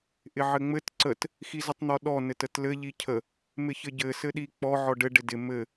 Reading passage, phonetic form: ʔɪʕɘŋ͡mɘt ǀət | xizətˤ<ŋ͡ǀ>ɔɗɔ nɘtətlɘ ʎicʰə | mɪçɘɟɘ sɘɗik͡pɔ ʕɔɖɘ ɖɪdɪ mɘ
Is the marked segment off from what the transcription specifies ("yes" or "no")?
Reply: yes